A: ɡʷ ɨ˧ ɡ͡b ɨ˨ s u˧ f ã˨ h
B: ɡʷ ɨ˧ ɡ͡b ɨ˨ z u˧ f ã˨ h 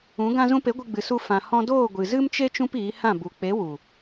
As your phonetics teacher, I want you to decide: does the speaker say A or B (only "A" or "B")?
A